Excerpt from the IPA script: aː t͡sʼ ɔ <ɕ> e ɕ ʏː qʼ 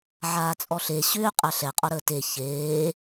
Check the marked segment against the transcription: incorrect: ɬ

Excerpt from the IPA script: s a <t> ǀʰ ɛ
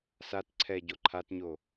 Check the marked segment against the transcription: correct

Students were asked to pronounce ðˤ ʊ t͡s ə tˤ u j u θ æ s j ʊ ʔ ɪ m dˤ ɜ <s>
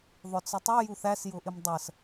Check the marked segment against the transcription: correct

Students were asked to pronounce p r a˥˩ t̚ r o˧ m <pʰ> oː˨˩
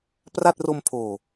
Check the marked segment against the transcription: correct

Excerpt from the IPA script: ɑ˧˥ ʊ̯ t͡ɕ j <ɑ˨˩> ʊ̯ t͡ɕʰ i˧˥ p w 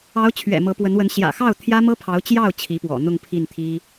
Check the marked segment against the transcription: incorrect: ɑ˥˩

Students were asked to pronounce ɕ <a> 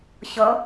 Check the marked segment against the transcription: incorrect: ʌ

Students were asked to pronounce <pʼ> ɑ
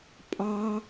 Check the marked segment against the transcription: correct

